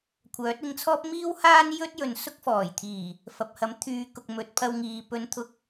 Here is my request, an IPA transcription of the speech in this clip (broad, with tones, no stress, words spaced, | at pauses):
kʷʰœː˨˥t̚ɪ˧ŋt͡sʰɔː˥p̚ miː˥whaː˥n jɵ˥t̚ jɵ˨˧nsʊ˥k̚fɔː˨˩jt̪ʰiː˨˩ | fɐ˨p̚hɐ˨˥mt̪ʰyː˨˧kʊ˨k̚ mɵ˨˥t̚pʰɐ˧w ŋiː˨ pɵ˧nt̪ʰʊ˧k̚